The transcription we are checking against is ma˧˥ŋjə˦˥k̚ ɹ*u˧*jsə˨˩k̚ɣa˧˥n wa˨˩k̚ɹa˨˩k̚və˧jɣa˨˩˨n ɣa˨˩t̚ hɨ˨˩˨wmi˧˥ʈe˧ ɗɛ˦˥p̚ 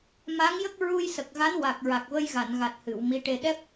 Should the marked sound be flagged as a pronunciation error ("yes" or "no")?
no